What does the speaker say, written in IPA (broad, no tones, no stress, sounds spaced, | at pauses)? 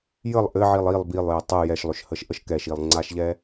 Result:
j ə lˠ ʔ ɘ ʕ i lˠ i lˠ b i lˠ j ʏ tˤ ɨ j ɛ ʃ lˠ ʏ ʃ h ə ʃ ʔ ə ʃ k ɛ ʃ i lˠ ŋ͡ǀ a ʃ ʎ ɛ